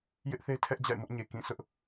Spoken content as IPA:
j ɪ˦ ʔ θ e˦ tʰ ɛ˦ ʔ d͡ʑ a̰˦˨ ɪ̯ m ʊ˦ ʔ ɲ e˨ k ĩ˦˨ sʰ ʊ˦ ʔ

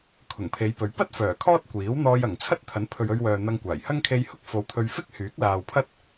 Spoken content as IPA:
kʰ ʊ˨˩ ŋ pʰ e˨˧ j p ɵ˨˧ ɥ p ɐ˥ t̚ f œː˨˩ kʰ ɔː˥ t̚ kʷ iː˨˥ w n̪ ɔː˧ j ɐ˨˩ ŋ t͡sʰ ɐ˥ t̚ t̪ʰ ɐ˨˥ n pʰ ɵ˨ ɥ ɵ˧ ɥ w œː˨ n̪ ɐ˧ ŋ kʷ aː˨˩ j h ɐ˥ ŋ kʰ e˧ j h ʊ˥ k̚ f o˨ w t̪ʰ ɵ˧ ɥ f ɪ˥ k̚ h yː˨˥ k̚ l aː˨ w pʰ ɐ˥ t̚

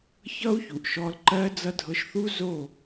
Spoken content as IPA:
ç ʌ˦ u̯ ç u˨ ʔ ʃ ɔ˧ l ǃ ɜ˦ d͡z ʌ˦ dʱ ɤ˧ ʃ θ u˦ z o˦˨

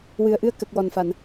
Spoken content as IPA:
w ɨ˨˩ ə̯ ʔ ɨ˧ ə̯ k ə˨˩ k̚ w ɔ˨˩ n f a˨˩˨ n

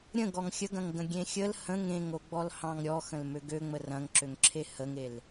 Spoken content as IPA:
ɾʲ ə̃ ɡ ɔ ŋ xʲ ə ɡ ɐ̃ ŋ ɡ ə̃ ɡʲ ẽ xʲ ə l h ə̃ ŋ ẽ ŋ o ɡ͡b ɔ l h ɑ̃ ŋ ɾʲ ɔ x ə̃ l m ø ɡ ø ŋ͡m ə r ɐ̃ ŋ ǁ ø ŋ ǁʰ e h ə ŋ e l

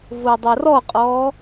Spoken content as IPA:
v o dˤ ɐ r ɔ qʼ ɔː

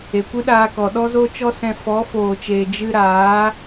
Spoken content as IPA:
e˨ kʷ ɨ˦ ɗ aː˧ k ɔ˨ ɗ ɔ˦ z o˦ t͡ʃ ɔ˦ s ɛ̃˧ f ɔ˨˦ f oː˨ t͡ʃ eː˨ d͡ʒ ɨ˧ ɾ aː˨˦

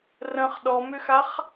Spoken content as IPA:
r ə̃ χ ɗ ɔ m ʏ x a χ

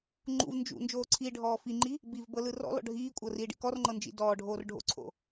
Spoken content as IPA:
ŋ͡ǃ ṵ v n d͡ʒ ṵ n d͡ʒ oː ǀʰ i ɖʱ ɔː f i ŋ͡ǃ i | b i v b ɤ l ɯ r ɔ̰ l ɔ̰ ɖʱ iː kʷʼ ɤ r iː ɖ ḭ k ɔ r ŋ͡ǃ ɤ n d͡ʒ ḭ d ɔː ɖʱ oː r ɖʱ o̰ ǀʰ o̰

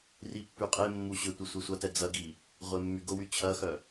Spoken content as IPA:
r i pː y qʼ e mː u ɕ ʏ tʷ i sʷ e sʷ ɐ t ɛ d͡z ɐ ɡ i | ʁʷ e mː y ɡ ʊ w y t͡ɕʰ ɐ x œ

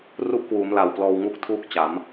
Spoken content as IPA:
r u˦˥ ʔ k w uː˩˦ m l a˨˩ w p l ɔː˧ w ŋ u˥˩ k̚ tʰ uː˥˩ k̚ t͡ɕ a˩˦ m

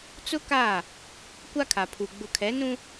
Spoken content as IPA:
t͡s ʊ˦ k a˦˨ | kʷ a˦ kʰ a˨ pʰ u˨ ɡ͡b ʊ˨ kʰ ɛ˨˦ n ũ˦

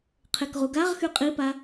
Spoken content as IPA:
qʰ e k ʁ u ɡ a ʁ x y qʼ i p a

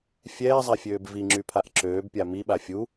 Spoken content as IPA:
fʲ ɛː zˤ a fʲ øː b v i ŋ͡ǁ y pʰ a ʔ ǁ øː b pʲ a m i ɓ a fʲ u

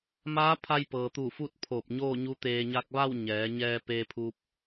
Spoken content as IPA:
m aː˧˥ pʰ a˧ j p ɤː˩ t̪ u˧˩ f u˥˨ t̚ pʰ oː˧˩ p̚ ɲ oː˥˨ ɲ u˧˥ t̪ eː˧ ɲ a˧ k̚ ʋ a˥˨ w ɲ ɛː˩˧ ɲ ɛː˧ p eː˧ pʰ u˧ p̚

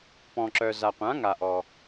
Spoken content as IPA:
p ɔ̃˨ ǁ œ˨ z a˨ qʷ ã˨˥ ŋ a˨ ʔ ɔ˨

